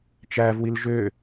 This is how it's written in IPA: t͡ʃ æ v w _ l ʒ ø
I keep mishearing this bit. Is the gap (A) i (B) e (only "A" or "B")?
A